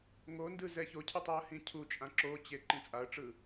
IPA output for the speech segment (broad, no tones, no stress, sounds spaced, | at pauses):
ŋ o n d ɯ z ɛ ç o cʰ ɯ tˤ i ə̯ h ĩ cʰ u t͡ʃʼ ã ǁ o t͡ɕ e ǃ ĩ t͡sʼ a ə̯ ʈ͡ʂ ɯ